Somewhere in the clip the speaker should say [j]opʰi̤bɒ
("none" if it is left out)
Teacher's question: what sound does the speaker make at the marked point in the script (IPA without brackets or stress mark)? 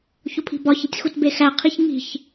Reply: ç